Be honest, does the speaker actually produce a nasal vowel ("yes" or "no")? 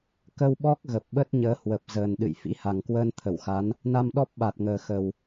no